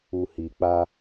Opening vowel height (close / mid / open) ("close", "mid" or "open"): close